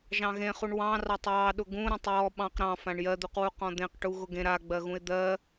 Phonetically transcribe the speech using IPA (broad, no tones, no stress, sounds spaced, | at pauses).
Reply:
ʒ ɑ̃ ɣ ẽ χ u ɳ w ɑ̃ r ɑ tˤ w ɑ ɗ ʊ ɡ ũ ɾ ẽ tˤ j ɔ ɓ ɑ̃ q ɾ ɑ̃ f ã ɳ j ɜ d̪ u q w u q ɔ̃ d̪ ẽ q ʈ u ɣ ʊ ɡ ẽ ɾ a ɡ͡b ɜ ɣ ũ ɪ̯ d̪ ɜ